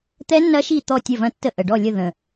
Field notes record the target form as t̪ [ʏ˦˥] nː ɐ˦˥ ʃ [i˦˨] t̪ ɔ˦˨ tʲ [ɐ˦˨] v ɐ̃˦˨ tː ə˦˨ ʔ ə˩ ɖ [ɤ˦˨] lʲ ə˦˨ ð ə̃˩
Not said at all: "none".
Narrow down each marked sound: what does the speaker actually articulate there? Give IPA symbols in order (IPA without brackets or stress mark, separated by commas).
ɛ˦˥, i˦˨, ɐ˦˨, ɔ˦˨